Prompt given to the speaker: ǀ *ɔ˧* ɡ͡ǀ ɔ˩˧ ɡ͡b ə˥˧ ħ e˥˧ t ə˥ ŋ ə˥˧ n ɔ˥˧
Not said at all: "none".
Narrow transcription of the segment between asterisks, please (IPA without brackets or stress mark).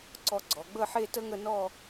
ɔ˧